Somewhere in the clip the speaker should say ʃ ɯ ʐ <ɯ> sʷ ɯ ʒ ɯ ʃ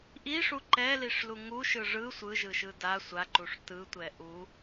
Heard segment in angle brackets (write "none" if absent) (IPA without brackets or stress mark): ɯ